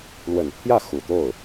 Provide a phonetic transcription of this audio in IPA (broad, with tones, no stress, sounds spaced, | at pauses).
l w ə˨˩ n pʰ j ä˥˩ x u˨˩ t̪ o˥˩ ʊ̯